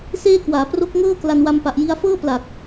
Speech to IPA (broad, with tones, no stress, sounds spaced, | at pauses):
s eː˥˩ k w aː˩˦ p r o˦˥ k̚ ŋ ɤː˥˩ k l a˧ n w a˧ m p a˨˩ ʔ j i˧ a̯ f ɤː˥˩ p l a˨˩ k̚